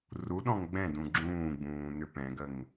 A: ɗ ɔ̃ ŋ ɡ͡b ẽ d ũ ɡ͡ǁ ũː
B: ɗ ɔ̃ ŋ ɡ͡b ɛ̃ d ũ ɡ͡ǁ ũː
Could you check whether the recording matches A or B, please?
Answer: B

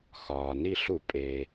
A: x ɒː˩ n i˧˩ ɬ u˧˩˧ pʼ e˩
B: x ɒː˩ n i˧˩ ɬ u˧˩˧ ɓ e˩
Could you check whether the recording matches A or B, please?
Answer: A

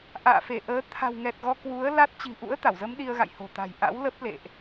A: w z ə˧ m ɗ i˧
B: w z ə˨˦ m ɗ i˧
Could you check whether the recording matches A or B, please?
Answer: B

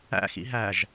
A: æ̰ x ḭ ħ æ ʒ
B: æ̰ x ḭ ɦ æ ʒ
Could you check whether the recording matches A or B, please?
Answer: B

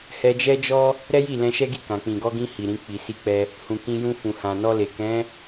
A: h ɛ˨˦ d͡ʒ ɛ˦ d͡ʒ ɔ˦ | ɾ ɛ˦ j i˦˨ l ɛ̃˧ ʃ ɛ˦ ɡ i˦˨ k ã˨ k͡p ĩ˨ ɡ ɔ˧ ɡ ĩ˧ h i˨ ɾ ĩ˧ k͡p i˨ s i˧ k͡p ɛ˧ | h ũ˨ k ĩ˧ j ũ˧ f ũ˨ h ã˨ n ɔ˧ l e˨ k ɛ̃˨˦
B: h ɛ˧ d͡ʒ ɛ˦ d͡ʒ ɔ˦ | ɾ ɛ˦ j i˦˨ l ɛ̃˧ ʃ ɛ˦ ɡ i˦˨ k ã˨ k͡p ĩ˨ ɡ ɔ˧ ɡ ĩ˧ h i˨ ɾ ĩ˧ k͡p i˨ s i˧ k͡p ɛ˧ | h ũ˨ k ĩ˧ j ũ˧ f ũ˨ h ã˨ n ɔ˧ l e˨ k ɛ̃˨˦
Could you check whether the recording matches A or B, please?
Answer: B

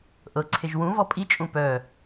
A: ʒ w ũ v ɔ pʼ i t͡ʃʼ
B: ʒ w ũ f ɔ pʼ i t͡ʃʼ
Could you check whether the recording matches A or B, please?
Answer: A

